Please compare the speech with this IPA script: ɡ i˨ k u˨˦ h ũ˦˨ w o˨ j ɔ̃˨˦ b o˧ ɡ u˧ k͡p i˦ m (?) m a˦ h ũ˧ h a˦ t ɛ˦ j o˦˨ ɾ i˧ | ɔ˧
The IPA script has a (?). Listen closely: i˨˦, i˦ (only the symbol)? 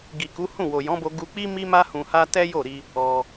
i˦